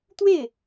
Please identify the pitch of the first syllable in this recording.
falling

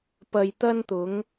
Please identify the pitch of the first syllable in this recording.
low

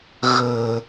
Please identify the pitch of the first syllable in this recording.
low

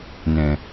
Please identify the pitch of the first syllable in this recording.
low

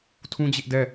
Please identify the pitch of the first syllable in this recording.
high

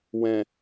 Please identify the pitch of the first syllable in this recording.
low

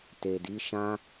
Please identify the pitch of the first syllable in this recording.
low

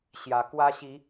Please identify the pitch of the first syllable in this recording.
rising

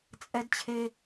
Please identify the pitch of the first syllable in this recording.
high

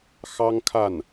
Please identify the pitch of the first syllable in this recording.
high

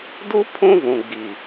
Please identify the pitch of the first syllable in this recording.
high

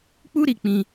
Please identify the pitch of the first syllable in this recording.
high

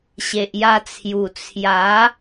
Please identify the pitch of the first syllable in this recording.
low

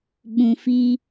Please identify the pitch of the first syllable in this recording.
low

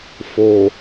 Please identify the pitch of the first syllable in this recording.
low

